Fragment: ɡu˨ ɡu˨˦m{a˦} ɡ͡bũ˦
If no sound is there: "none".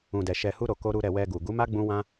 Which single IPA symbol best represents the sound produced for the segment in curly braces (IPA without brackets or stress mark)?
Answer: a˦